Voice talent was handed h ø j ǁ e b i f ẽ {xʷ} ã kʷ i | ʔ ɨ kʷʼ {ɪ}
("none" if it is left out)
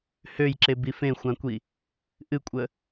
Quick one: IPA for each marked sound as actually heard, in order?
xʷ, ə

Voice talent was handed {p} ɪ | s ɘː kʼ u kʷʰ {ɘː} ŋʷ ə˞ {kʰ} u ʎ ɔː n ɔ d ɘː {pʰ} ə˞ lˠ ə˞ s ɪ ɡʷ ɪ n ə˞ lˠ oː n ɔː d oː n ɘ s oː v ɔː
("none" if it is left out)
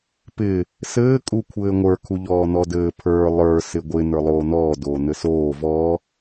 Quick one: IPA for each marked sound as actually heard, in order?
p, ɘː, kʰ, pʰ

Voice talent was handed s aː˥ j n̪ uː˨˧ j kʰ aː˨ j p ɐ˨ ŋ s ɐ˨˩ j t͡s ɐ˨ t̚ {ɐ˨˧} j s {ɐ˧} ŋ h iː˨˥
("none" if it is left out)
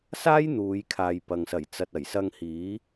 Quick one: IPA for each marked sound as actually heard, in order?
ɐ˨˩, ɐ˧

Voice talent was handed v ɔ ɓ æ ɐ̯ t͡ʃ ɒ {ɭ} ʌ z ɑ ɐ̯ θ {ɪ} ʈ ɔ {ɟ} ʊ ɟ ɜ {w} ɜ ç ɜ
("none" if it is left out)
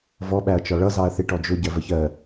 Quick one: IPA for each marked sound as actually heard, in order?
ɭ, ɪ, d͡ʒ, v

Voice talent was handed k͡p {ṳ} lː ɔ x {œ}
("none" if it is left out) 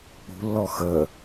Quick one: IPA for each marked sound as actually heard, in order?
ṳ, ə

